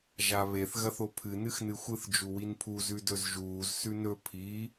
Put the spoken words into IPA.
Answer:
ʒ a β e θ ɣ ɐ θ o pʰ ɨ n ɨ x n ɨ xʷ ɨ θ d͡ʒ u w i n pʰ u z ʉ d ɵ z ʒ uː z s ʉ n ɵ pʰ i

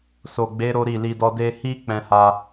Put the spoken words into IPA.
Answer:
s o˨ ɡ͡b e˨˦ ɾ o˦ ɾ i˦˨ l i˧ d ɔ˦ d e˧ h i˦ k͡p ɛ̃˧ h a˧

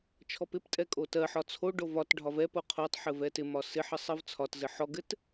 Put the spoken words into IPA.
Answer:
t͡ʃʰ ɔ p ɪ p tʼ ɛ kʼ o t ɜ ħ ɒ t͡sʰ o ɖ o v ɒ t ɖʱ ɒ v ɛ p o qʰ o tˤ ħ ɘ v ɛ t ɪ m ɒ s ɪ ħ ɘ sˤ ɜ v t͡sʰ ɒ t z ɘ ħ ɔ ɡ ɘ t

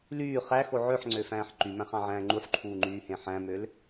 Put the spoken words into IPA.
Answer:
l yː χ æ x o ʕ ø ħ ŋ͡ǀ ø f æ̃ː ħ ǃ y m æ̃ χ ɑ̃ ʕ æ̃ː ŋ͡ǃ u ħ ǃʰ uː ŋ͡ǃ yː h ẽ ħ æ̃ m ø l

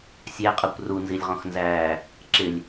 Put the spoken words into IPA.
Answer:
sʲ æ qʼ ʌ kʷ r u n z i lʲ ʁ ɔ̃ x n z æː | ǁ ɪ lʲ

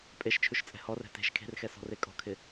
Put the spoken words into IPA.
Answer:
pʼ e ʃ t͡ʃʰ ʉ ʃ t͡sʼ ɛ̤ h ɔ r ɛ̤ t e̤ ʃ kʰ e̤ r x ɛ s ɔ̤ r e kʼ ɔ̤ kʰ ɪ

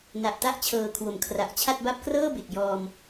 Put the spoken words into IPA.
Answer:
n a˨˩ ʔ t a˦˥ ʔ t͡ɕʰ ɤː˨˩ kʰ w o˩˦ m kʰ r a˨˩ ʔ t͡ɕʰ a˥˩ t̚ b a˥˩ p̚ k r ɤː˥˩ b e˨˩ k̚ j ɔː˧ m

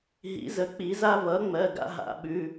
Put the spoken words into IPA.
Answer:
ɦ ḭ˨˩˦ z ə˩˥ k͡p i˨˩˦ z a˦ v ʌ˩˥ ŋ͡m ɜ˩˧˩ ɡ a̰˦ ɦ a̰˨˩˦ ɓ ʉ˩˧˩

